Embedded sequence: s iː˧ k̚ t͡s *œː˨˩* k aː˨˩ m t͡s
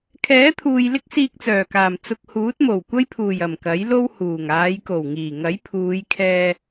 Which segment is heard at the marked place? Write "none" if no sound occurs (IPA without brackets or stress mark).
œː˨˩